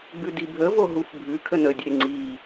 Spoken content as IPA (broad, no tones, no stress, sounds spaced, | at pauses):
ɡ͡b ʉ d i bʱ ə v o ɦ u f bʱ ʉ kʰ ə n ə dʲ e ŋ͡ǀ i